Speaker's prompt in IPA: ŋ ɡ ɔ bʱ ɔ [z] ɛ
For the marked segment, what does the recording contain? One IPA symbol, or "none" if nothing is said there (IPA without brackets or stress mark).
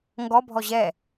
ʑ